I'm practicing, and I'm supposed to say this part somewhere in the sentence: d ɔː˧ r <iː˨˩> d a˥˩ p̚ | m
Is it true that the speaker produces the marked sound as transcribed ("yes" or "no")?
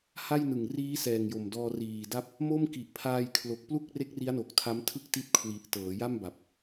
yes